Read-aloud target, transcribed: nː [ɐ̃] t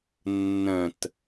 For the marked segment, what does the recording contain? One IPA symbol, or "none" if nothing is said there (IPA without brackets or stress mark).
ɐ̃